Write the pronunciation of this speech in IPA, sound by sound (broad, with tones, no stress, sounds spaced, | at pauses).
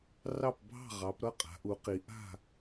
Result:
r ɑ˥˨ p bʱ ɑ̤˥˨ ʁ ɑ˩˧ p ɾ ʌ˥˨ qʼ a̤˩˧ ʔ u˩˧ q i˩˧ ʔ a̤˥˨